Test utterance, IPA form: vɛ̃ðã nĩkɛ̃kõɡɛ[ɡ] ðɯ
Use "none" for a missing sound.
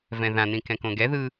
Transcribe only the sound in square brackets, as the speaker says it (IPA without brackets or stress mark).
none